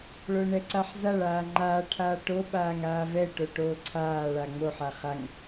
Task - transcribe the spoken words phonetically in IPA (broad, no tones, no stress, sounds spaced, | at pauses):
ɭ o ɳ ɛ ǀ a ħ z a ɭ aː ŋ͡ǃ aː ʈʰ aː ʈ o ɓ aː ŋ aː v ɛ ʈ o ʈ oː ǀʰ aː ɭ a ŋ͡m o ħ a χ a ŋ